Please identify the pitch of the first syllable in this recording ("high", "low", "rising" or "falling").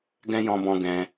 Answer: high